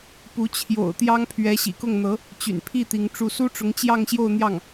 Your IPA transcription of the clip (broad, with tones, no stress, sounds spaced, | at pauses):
p u˧˥ t͡ɕʰ j o̰˨˩ ʊ̯ t̪ j ɑ˥ ŋ pʰ ɥ ɛ˧˥ ɕ ḭ˨˩ k ʊ˥˩ ŋ n̪ ɤ˧˥ | t͡ɕ y̰˨˩ n pʰ i˥˩ t̪ i˧˥ ŋ ʈ͡ʂ u˥˩ s u˥ ʈ͡ʂ ʊ˧˥ ŋ t͡ɕ j ɑ˥˧ ŋ ɕ j o˥˧ ʊ̯ n̪ j ɑ˥˩ ŋ